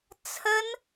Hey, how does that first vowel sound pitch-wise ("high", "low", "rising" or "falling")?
high